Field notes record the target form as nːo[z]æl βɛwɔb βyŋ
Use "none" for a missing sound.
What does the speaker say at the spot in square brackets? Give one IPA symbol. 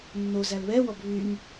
z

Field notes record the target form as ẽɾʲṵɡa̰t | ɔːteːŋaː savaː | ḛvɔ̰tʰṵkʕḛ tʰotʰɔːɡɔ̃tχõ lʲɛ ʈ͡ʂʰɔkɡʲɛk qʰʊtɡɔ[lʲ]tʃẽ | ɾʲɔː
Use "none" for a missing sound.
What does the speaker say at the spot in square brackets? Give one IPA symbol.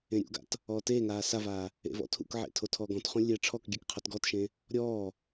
none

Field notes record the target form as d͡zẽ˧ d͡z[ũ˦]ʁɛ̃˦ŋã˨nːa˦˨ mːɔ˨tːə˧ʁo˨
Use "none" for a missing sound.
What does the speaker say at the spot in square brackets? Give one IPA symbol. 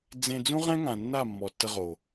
ũ˦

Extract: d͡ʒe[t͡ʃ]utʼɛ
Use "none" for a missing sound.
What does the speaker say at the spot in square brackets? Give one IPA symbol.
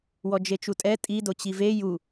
t͡ʃ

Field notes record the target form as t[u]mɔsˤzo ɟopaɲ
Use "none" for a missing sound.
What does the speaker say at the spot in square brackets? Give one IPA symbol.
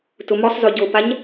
ʊ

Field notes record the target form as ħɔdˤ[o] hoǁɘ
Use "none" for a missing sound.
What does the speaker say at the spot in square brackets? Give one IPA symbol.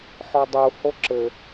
u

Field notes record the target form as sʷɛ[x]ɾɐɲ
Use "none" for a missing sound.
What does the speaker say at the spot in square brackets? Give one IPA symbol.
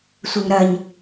ŋ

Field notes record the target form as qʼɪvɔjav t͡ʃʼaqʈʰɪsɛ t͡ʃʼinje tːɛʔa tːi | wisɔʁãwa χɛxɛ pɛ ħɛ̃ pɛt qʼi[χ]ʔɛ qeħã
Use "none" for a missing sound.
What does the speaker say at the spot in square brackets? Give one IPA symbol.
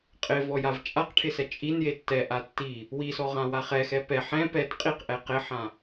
q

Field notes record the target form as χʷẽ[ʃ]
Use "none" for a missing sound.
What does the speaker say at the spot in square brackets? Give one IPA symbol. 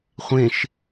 ʃ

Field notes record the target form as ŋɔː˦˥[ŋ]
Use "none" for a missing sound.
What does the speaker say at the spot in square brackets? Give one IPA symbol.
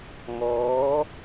none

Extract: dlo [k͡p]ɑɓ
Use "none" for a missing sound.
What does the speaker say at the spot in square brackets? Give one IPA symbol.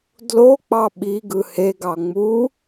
k͡p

